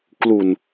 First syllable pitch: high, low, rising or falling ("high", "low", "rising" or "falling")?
low